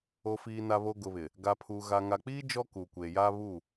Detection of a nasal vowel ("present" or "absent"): absent